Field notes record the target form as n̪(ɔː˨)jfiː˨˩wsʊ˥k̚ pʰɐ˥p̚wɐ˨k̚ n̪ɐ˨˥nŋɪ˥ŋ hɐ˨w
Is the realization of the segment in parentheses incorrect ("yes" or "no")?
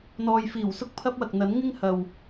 no